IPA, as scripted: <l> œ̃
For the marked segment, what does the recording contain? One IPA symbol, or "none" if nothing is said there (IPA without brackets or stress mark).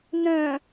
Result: n